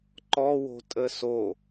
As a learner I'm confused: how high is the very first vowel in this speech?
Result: mid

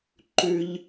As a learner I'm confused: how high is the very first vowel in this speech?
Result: high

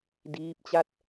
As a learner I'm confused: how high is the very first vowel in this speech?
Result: high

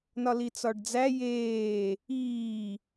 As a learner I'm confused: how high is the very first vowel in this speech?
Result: low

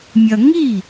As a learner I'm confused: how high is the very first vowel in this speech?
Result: low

